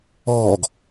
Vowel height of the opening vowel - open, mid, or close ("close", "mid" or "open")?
mid